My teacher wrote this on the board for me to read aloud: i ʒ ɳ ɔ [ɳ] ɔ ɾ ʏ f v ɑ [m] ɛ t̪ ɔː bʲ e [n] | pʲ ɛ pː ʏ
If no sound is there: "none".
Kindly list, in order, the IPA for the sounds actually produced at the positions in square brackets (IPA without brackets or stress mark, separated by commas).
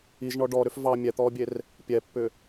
ɖ, mʲ, r